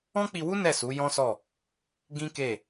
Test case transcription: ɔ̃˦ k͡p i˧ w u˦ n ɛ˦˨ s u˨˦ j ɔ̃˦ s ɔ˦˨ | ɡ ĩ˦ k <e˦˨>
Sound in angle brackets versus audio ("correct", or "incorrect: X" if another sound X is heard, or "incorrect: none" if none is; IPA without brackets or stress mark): correct